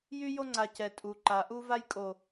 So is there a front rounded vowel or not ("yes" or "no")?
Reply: yes